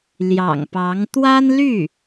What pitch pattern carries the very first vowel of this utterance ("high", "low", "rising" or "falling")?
low